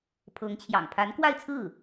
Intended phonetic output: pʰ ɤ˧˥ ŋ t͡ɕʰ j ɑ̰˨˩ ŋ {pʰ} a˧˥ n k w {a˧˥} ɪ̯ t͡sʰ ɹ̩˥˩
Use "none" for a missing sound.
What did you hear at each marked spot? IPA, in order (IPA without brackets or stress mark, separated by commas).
pʰ, a˥˧